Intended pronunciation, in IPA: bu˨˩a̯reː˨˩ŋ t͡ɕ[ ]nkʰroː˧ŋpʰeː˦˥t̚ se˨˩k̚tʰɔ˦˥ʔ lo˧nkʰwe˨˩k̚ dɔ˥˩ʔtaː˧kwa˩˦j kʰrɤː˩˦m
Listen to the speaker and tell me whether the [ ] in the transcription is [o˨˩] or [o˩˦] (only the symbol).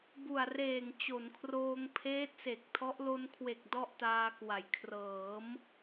o˩˦